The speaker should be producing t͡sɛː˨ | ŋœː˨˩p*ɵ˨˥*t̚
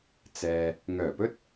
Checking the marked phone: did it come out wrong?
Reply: yes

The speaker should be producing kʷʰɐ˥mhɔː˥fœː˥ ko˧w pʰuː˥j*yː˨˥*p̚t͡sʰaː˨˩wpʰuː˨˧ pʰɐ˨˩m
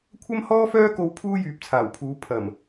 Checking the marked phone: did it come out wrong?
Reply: yes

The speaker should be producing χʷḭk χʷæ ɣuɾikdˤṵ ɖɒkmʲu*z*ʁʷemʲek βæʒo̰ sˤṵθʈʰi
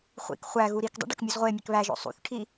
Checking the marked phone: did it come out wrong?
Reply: no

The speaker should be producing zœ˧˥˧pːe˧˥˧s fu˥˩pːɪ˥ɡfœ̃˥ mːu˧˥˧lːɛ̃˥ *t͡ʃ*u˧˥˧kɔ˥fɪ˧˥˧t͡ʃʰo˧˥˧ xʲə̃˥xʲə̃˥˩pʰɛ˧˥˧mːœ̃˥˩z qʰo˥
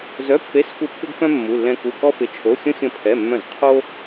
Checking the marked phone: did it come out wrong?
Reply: yes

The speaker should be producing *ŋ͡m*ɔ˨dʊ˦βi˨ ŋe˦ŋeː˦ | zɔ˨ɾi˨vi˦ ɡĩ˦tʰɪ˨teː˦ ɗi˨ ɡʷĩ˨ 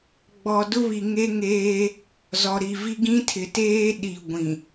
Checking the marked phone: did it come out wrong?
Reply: yes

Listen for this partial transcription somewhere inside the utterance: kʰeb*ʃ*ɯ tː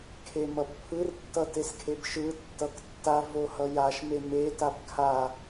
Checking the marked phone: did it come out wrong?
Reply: no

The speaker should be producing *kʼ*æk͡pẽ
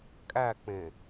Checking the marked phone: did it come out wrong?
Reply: no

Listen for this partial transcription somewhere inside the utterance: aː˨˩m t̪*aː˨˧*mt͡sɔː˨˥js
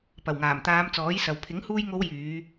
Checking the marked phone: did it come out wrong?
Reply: no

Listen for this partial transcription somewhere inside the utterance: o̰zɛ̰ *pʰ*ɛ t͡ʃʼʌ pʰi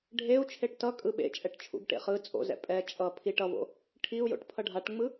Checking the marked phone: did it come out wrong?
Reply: yes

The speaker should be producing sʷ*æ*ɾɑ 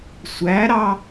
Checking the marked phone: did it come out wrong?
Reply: no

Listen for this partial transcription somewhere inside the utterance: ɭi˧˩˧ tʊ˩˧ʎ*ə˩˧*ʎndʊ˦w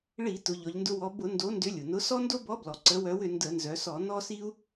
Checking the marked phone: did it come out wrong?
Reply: yes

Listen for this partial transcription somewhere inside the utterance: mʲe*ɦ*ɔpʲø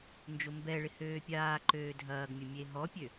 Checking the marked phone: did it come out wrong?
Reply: no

